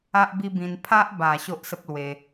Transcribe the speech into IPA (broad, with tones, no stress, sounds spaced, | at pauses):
a˦ ʔ b i˦ b ĩ˧ n pʰ a˦ ʔ b a˨˩ ɕ o˦ ʔ s ə˦ p̚ l w e˧